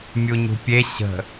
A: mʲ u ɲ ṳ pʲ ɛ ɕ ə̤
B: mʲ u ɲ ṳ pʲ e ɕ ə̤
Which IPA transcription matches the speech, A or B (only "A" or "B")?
B